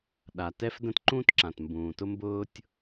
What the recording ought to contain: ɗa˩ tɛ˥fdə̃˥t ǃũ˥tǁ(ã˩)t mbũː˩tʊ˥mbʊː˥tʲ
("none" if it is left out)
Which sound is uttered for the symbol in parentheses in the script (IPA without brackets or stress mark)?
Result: ã˩